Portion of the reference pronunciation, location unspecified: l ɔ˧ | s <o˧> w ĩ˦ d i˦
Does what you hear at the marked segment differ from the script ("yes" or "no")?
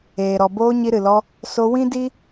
no